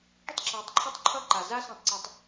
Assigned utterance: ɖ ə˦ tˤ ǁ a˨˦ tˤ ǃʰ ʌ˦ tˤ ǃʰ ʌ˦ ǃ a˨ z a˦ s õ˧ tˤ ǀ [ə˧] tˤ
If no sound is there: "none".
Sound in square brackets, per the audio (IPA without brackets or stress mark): ʌ˧